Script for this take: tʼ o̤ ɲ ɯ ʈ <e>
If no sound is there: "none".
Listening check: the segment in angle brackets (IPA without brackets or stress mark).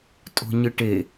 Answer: e